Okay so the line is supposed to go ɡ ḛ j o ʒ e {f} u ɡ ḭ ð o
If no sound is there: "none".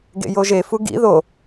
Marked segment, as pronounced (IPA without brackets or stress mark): f